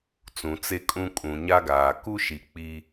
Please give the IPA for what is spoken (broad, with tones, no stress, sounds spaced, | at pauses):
t͡s ũ˨ t͡s e˦ kʼ ũ˦ kʼ ũ˨ ɲ a˦ ɡ aː˨ k u˦ ʃ i˨ k͡p i˦